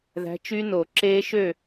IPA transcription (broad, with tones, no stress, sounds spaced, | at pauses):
ð æ̤˨˥ t͡ʃ y˦˥ n o˨˩˦ ǁ eː˦˥ ʃ ø˥˨